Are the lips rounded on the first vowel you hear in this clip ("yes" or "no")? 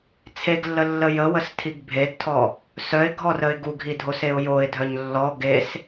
no